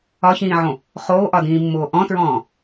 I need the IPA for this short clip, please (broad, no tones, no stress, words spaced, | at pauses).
ɒçĩːʕõ | χoːʔɒdĩːmːoː ʔɔ̃tɹɔ̃ː